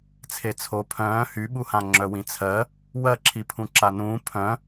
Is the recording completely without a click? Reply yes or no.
no